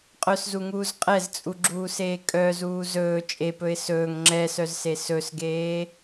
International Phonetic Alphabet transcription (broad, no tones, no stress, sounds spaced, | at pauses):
qʼ œ s z u ŋ uː z qʼ ɛ z t͡sʼ u ɡ͡ǁ uː s eː kʼ œ z uː z ɵː t͡ʃʼ e p ɵ ɪ̯ s ɵː ŋ ŋ͡ǁ ɛ s œ z s e s ɵ s ɡ eː